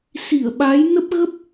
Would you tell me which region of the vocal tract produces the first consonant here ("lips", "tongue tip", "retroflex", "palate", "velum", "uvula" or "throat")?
tongue tip